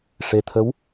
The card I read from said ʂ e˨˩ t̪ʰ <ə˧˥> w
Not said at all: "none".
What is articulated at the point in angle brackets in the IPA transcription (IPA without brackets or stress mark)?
ə˧˥